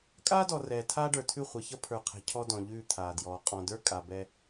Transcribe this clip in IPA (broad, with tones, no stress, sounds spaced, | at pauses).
kʼ aː˦ d ɔ˨ r ɛː˨ tʰ aː˦ ɖ ə˞˨ tʰ ʉ˦˨ χʷ ʌ˨ ç ʌ˦ pʰ ə˞˨ qʰ ɛ̤˨ cʰ ɔ˦ d ɔ̃˨ ʎ ʉː˦˨ t̪ʰ aː˨ d j ɔː˨ qʼ ɔ̃˨ d ə˞˦ kʼ a˨ b ɛ˦